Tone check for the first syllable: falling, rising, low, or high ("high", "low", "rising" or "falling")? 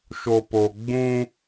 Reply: low